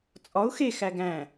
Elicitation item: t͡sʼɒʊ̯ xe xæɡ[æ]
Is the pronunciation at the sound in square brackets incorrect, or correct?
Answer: incorrect